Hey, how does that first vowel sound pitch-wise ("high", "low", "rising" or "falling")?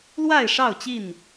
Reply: falling